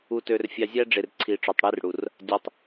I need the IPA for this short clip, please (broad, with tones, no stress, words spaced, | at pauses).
u˨tø˨rfʲɑ˨ zʲæ˦ɖ͡ʐe˨rǀʰi˨ ʈ͡ʂo˨tˤɽi˦r ɽu˨r | dʲɑ˨tˤ